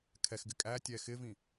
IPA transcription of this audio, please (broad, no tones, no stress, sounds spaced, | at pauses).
kʰ ɛ x ɡ ɪ kʼ æ tʲ ɛː x ɪ v ĩ